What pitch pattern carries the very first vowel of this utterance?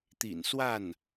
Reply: low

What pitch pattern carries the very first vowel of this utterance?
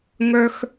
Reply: high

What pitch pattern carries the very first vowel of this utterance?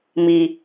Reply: low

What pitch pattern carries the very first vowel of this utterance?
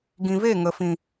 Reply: low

